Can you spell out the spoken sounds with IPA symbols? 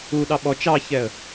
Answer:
u ɗ ɑ ɓ ɔ t͡ʃ ɑ ç ɛ ə̯

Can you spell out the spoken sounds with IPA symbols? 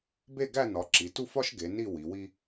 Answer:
b e˥˧ ɡ æ˥˧ n ɒ˩˧ ǁ i˩˧ t u˥˧ f ɒ˥ ʃ ɡ e˩˧ n i˥˧ w i˩˧ w i˥

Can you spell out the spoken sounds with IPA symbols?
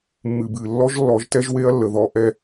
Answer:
mː ɨ˨ b ɨ˨ lː ɔ˦ ʒ lː ɔ˨˦ ʒ t ɛ˦ ʒ w e˦ ɐ̯ lː ə˨ ð ɔ˦ ʔ ɛ˦

